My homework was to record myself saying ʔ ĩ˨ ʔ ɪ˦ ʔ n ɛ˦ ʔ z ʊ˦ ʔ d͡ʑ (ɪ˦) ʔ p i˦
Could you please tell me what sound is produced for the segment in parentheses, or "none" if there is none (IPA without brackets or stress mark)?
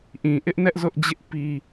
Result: ɪ˦